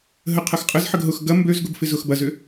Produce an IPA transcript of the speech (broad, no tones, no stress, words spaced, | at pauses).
ɦə qʰɐxqʼəzħəɡ ɦʊx ɡɐ mbøzɡʊb fɪzʊxbɐzʏ